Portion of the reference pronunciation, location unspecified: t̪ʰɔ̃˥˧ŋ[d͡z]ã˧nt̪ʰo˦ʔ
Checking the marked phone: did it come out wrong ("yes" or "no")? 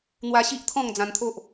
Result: no